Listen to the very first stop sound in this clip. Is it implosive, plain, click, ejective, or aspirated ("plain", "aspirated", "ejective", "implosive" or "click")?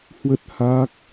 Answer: plain